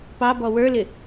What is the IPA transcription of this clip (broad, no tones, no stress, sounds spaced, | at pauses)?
p ɑ b ɔ w ə˞ l ɪ